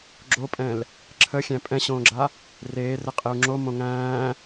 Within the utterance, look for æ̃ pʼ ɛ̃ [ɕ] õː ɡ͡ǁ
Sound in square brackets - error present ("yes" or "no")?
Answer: no